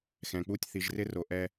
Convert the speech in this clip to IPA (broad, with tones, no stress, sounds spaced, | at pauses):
x ɛ̃˨ k͡p u˦˨ tʲ θ i˨ ʒ r ɪ˦ r o˨ ʔ ɛ˧